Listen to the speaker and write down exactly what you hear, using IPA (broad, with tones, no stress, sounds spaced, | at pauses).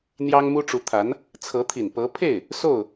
n̪ j ɑ˥ ŋ m u˥ ʈ͡ʂ u˧˥ t̪ʰ a˧˥ n | t͡sʰ ɤ˧˥ t̪ʰ i˨˩ n p ɤ˧˥ pʰ e˥˩ ɪ̯ | s o˥˩ ʊ̯